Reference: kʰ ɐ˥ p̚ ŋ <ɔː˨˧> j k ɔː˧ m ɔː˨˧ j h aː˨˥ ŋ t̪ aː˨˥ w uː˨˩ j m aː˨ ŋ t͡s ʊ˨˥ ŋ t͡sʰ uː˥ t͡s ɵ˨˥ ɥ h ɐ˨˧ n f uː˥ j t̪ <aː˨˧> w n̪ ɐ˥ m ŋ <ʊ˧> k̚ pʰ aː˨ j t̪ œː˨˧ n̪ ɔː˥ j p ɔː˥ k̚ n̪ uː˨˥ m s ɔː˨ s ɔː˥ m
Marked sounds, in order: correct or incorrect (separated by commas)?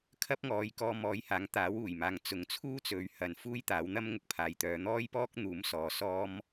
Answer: correct, incorrect, incorrect